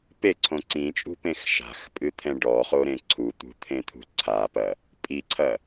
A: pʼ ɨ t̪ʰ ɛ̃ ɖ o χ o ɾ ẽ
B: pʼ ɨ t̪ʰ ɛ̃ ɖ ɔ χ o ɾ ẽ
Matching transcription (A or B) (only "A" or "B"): B